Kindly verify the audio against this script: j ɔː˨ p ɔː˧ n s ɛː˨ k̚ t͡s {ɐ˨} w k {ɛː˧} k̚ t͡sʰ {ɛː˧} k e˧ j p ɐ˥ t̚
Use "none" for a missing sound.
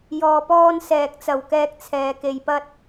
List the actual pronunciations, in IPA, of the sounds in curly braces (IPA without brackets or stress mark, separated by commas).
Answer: ɐ˨, ɛː˧, ɛː˧